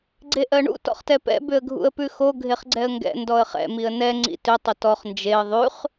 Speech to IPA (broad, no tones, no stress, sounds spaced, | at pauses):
ɡ͡ǀ e ʔ ɜ ɳ ṵ t ɔ̰ χ t ɛ p ɛ̰ b ʏ ə̯ ɡʱ ṵ ə̯ p ʉ x o ɡʱ e χ ɡ͡ǀ ɛ ə̯ ŋ ɡ ɛ̰ n d ɔ ə̯ χ ɛ̰ m i ə̯ n ɛ ŋ͡ǀ ḭ t ʏ tˤ ʏ t ɔ χ n d͡ʒ e ə̯ ðˤ ʉ χ